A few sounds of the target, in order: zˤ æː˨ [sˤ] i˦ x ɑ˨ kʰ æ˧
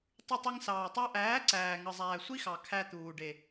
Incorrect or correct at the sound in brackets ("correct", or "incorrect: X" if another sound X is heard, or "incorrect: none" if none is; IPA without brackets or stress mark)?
incorrect: sʷ